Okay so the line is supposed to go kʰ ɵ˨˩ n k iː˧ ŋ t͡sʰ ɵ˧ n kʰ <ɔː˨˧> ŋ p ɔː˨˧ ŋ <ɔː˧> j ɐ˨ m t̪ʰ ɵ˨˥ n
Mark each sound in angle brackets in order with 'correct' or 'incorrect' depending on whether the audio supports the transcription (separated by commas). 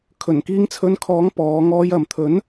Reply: incorrect, correct